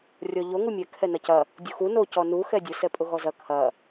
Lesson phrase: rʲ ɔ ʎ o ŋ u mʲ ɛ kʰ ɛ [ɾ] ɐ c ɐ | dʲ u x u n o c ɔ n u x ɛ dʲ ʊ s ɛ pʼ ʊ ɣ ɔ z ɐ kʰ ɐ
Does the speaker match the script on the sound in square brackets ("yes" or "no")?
no